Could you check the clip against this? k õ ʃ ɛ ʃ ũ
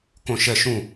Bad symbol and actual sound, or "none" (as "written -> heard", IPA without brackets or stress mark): none